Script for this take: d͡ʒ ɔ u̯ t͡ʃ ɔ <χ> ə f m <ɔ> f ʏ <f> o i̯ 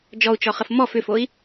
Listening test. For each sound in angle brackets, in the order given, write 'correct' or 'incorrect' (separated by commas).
correct, correct, correct